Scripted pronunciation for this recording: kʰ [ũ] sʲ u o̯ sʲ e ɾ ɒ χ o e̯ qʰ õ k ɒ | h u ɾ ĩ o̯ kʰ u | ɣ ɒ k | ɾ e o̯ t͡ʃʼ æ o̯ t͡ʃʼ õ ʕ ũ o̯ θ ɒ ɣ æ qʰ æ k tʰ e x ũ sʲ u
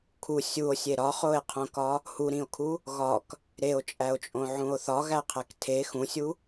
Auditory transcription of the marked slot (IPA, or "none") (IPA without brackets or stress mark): u